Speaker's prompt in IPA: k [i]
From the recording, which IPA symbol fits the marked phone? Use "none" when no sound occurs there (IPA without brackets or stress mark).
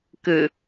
ɨ